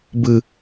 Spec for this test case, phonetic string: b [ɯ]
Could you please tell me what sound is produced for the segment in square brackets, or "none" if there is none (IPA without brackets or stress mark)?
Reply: ɯ